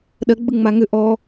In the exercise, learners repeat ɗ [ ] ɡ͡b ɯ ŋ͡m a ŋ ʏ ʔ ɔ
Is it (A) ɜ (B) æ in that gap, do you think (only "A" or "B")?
A